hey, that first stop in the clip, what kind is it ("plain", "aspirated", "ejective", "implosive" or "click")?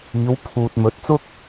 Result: aspirated